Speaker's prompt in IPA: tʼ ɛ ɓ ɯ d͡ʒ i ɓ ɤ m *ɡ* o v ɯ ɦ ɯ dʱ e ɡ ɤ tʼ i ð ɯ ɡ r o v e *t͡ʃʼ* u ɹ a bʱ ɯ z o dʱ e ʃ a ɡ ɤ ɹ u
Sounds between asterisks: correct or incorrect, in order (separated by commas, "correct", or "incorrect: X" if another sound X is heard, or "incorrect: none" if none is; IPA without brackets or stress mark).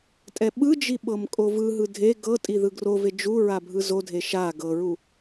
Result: incorrect: kʼ, incorrect: d͡ʒ